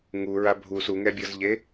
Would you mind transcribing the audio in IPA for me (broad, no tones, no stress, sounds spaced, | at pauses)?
ŋ u ɹ a bʱ u s u ŋ ɛ bʲ ɤ z ʎ e